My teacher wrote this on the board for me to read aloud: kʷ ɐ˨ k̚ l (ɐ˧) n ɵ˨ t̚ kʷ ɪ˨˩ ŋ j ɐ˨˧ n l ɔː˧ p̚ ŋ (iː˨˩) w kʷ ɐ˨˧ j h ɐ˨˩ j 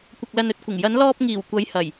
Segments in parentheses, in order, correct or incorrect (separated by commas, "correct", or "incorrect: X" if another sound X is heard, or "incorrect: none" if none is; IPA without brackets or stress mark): incorrect: ɐ˨, correct